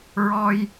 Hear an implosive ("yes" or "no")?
no